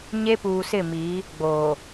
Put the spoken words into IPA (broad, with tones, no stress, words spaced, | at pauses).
ɲe˦puː˨sɪ˦˨miː˨˦ | ɡ͡boː˨